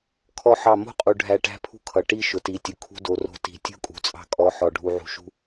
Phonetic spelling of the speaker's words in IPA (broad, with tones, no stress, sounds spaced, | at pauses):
kʰ ɔ˦ ħ ɑ˦˨ m o̤˦ qʼ u˨ ɖʱ æ˧ ʈ æ̤˦ pʰ ṳ˦ kʰ ʌ˨ ʈ i˦ ʃ ʊ˨ t i˨˦ tʲ ʊ˨ kʰ ṳ˦ d o˧ r o̤˦ t i̤˦˨ tʲ o̤˦ kʼ ṳ˨ t͡sʼ ɑ̤˧ kʼ ɔ˨˦ ħ ɔ˨ ɖʱ u˧ ʕ ṳ˧ ʃ ṳ˦